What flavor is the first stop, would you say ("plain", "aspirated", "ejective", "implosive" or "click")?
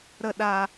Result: implosive